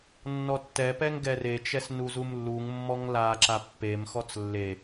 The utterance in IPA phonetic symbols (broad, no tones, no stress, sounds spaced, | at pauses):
nː ɔ tː ɛ p ɛ ŋ ɡ ɛ r e t͡ʃ ɛ s n u z u m lː u ŋ mː ɔ ŋ l a ǁ a pː e m x ɔ t͡s lː e